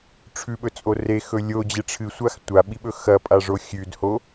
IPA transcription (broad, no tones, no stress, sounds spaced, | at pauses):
ʈ͡ʂʰ ʉ ɓ ɵ t͡sʼ o r e x ɵ lʲ o d͡ʑ e ʈ͡ʂʰ ɨ sʷ a x tʷ a ɓ i ɓ ɵ x ɐ pʼ a ʐ o xʲ ʉ d h o